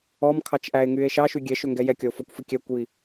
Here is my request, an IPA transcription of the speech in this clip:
ɔ m kʰ ɑ t͡ʃ ʔ æ e̯ ŋ y e̯ ʃ ɑ ʃ y ɡʲ ɛ ʃ ø ŋ ɡ ɛ j ɛ kʲ ɔ o̯ f ɔ kʷ f i kʲ æ kʷ j i

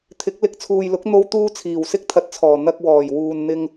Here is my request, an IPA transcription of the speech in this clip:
t̪ʰ ɪ˨˥ k̚ l ɪ˨˥ k̚ t͡sʰ uː˨ j l ʊ˨˥ k̚ n̪ o˥ w t̪ uː˥ t͡sʰ iː˨˩ w s ɪ˥ k̚ t̪ʰ ɐ˨˥ t̚ t͡sʰ ɔː˨˩ n̪ ɐ˧ k̚ w ɔː˨˩ j w uː˨ n n̪ ɪ˧ ŋ

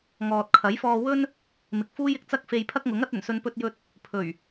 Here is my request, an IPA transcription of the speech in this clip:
ŋ ɔː˨ t̚ kʰ ɐ˨˥ j f ɔː˧ w ɵ˥ n | m ɪ˨ k̚ f uː˥ j ɪ˨ k̚ t͡s ɐ˥ k̚ f e˧ j pʰ ɐ˥ k̚ ŋ ʊ˨˥ ŋ ɐ˨˥ t̚ ɵ˨˩ n s ɵ˧ n p ɵ˧ t̚ j ɵ˧ t̚ | pʰ ɵ˨˩ ɥ

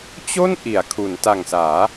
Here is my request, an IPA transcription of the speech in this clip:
t͡ɕ o˥˩ n ʔ i˩˦ a̯ kʰ u˩˦ n t a˨˩ ŋ s aː˩˦

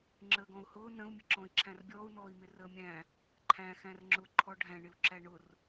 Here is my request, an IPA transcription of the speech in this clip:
ŋ͡ǁ əː ɡ ɔ̃ u̯ h ʊː n ə̃ u̯ mʲ ə ǁ ɔ̃ i̯ ǁʰ æ̃ r bʲ ɔː u̯ n ɔː i̯ m ɪ r əː mʲ æ̃ | ǃʰ æ̃ x æ̃ r ŋ͡ǁ ʊ ǃʰ ɔ ɖʱ æ̃ ɳ ɪ u̯ ǁ æ ɳ ʊ r

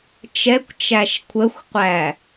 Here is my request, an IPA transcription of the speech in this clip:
t͡ʃ ɛ kʷ t͡ʃ æ ʃ kʷʰ ə xʷ qʷ æ

